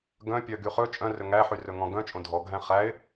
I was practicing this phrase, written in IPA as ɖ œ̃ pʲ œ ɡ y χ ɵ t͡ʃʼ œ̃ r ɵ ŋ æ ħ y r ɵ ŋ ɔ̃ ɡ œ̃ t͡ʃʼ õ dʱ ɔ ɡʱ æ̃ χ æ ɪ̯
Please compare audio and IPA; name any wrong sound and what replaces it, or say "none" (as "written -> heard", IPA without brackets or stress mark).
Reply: ɖ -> ɡ